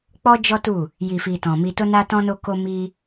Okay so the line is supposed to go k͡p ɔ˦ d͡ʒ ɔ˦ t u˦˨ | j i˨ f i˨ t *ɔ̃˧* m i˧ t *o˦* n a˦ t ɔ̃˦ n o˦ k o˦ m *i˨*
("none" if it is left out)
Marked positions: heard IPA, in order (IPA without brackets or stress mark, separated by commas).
ɔ̃˨, o˦, i˦